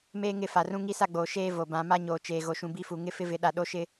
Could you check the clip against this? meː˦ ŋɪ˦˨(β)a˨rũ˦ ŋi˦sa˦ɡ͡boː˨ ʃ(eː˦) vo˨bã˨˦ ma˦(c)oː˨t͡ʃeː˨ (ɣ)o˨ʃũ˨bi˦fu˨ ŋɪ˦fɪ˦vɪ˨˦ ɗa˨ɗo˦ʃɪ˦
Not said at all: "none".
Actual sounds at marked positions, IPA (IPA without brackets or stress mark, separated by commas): f, eː˦, ɲ, ɣ